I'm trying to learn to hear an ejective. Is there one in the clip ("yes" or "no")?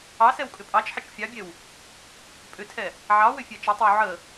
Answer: yes